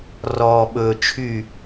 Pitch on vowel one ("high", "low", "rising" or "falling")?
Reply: low